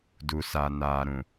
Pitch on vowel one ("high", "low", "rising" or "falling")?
low